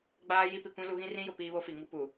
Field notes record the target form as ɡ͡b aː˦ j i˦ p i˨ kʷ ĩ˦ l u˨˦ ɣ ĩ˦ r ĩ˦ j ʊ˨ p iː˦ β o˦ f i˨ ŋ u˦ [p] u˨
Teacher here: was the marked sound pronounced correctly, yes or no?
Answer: yes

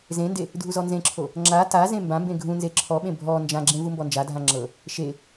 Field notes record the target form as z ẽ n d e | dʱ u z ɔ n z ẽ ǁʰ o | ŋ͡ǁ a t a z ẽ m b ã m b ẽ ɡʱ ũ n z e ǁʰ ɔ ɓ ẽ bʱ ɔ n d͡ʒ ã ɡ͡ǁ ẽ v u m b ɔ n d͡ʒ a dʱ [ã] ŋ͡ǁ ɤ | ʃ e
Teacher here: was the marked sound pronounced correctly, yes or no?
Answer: yes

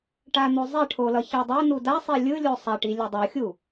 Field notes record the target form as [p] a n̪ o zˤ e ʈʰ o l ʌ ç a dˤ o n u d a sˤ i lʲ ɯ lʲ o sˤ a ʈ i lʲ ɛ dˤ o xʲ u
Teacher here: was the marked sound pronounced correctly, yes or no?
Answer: no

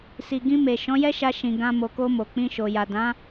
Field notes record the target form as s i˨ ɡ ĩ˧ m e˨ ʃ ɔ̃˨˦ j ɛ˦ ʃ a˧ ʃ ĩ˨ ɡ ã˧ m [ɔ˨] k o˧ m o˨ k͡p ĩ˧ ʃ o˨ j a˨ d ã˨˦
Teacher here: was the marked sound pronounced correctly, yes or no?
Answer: no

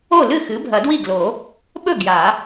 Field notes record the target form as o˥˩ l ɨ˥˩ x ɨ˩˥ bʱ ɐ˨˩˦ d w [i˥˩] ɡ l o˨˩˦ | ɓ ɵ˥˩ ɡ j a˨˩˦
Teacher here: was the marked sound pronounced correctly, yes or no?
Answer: yes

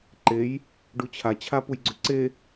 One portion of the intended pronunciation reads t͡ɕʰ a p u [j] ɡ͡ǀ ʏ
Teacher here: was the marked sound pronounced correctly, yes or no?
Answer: yes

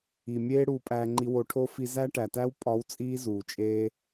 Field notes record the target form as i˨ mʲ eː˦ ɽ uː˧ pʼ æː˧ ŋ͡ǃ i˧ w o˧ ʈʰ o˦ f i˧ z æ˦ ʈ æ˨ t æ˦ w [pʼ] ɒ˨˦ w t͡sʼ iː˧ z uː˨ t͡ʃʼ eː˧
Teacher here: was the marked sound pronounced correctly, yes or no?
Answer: yes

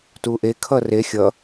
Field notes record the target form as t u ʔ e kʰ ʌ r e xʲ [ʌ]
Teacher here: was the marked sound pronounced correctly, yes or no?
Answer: yes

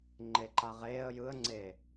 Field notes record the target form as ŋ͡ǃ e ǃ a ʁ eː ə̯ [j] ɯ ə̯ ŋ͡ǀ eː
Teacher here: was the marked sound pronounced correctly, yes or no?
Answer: yes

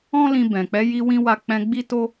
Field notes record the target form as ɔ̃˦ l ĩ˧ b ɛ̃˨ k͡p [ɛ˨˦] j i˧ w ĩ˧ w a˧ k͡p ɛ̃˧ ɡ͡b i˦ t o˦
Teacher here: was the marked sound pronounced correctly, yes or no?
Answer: yes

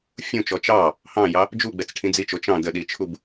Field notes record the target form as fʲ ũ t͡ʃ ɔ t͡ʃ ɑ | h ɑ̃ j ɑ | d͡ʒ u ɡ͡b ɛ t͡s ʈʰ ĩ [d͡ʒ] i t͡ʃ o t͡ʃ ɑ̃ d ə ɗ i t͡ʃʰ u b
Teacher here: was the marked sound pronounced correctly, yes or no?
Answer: no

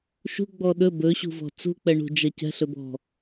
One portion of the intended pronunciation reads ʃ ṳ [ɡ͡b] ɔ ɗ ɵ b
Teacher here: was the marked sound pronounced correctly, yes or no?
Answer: yes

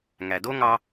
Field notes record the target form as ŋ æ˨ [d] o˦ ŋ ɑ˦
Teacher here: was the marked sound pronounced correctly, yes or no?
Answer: yes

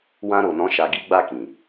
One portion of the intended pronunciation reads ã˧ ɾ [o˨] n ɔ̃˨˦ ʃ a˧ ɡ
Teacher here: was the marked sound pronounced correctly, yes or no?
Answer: yes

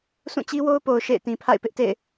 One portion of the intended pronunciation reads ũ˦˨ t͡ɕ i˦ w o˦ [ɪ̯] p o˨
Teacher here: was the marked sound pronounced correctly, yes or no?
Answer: no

